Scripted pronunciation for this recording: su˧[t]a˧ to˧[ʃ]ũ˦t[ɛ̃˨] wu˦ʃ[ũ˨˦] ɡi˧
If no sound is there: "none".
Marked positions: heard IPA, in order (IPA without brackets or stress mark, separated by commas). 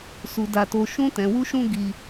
d, ʃ, ɛ̃˧, ũ˦